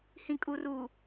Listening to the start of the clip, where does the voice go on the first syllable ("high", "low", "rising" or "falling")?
low